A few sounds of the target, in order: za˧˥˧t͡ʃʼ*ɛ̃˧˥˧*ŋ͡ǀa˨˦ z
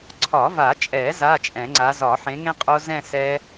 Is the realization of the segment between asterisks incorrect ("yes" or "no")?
yes